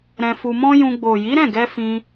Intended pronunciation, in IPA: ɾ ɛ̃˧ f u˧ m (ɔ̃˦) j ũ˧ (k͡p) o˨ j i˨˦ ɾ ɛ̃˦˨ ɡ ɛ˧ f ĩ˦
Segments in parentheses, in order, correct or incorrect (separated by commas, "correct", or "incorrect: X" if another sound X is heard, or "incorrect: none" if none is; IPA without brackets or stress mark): correct, incorrect: ɡ͡b